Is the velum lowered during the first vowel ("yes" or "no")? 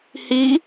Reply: no